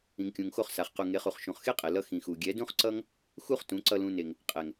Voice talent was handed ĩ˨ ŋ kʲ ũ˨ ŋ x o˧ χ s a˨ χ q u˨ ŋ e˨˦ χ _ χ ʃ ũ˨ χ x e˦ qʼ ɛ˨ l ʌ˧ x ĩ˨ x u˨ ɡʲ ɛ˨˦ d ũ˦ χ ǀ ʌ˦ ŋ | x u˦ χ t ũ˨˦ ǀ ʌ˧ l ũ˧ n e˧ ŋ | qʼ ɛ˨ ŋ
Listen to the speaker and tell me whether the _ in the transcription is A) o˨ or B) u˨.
B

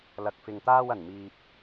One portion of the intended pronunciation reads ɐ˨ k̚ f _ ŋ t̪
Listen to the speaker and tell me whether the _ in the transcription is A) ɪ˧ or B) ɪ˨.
B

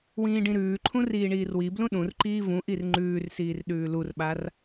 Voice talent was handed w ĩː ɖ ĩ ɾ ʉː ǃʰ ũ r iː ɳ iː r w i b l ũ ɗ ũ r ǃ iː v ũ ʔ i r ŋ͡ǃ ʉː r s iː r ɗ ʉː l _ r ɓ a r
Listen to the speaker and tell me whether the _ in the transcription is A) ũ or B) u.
B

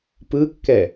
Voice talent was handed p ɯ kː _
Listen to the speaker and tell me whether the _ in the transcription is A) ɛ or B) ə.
A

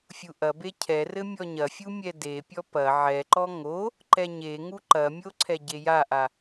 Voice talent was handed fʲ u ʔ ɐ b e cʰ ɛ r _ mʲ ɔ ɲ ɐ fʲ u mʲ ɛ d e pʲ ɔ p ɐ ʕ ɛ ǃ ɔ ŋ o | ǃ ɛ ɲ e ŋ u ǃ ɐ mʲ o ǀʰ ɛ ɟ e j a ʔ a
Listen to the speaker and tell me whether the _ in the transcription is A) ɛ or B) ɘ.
B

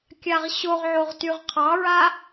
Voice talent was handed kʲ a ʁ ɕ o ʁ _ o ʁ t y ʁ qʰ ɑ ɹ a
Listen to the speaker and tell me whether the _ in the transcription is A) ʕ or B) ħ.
A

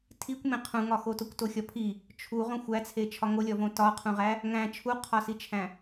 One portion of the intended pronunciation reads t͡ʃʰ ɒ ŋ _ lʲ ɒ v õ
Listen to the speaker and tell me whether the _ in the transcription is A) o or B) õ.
A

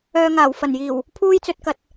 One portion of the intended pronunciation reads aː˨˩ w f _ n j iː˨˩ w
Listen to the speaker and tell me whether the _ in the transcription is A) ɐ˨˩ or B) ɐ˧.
A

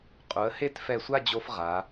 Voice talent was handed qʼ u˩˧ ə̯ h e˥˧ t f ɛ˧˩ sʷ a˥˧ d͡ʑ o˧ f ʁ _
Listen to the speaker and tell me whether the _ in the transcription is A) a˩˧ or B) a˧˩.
A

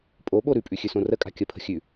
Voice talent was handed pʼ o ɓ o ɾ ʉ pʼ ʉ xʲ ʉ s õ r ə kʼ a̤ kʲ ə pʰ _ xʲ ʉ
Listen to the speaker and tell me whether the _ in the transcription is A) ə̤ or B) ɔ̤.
A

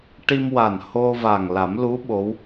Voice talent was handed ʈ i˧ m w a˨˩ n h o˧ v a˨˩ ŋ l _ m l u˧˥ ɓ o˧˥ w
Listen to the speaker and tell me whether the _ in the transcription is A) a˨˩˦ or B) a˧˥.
A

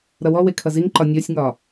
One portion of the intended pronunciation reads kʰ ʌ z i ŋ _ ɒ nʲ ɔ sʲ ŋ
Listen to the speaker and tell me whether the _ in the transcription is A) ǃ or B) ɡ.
A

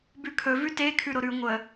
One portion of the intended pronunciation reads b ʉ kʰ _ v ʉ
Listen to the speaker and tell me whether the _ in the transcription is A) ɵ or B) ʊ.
A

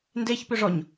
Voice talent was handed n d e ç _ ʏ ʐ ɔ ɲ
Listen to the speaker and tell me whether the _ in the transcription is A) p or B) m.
A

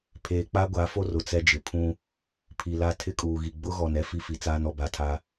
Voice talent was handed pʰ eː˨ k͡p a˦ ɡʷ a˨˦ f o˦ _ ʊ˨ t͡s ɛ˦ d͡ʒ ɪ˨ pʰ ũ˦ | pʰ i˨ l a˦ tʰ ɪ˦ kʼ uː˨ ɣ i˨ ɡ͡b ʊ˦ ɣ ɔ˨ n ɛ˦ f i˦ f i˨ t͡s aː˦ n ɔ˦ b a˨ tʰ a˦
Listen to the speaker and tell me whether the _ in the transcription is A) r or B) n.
A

